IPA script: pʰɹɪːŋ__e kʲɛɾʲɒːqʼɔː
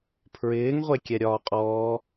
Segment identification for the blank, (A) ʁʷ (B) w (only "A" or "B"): A